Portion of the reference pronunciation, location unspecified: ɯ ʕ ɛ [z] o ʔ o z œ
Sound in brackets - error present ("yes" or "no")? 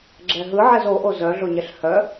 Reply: no